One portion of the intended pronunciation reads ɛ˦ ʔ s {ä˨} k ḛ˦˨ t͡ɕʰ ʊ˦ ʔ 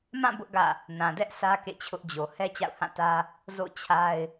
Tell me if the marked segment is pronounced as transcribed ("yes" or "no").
no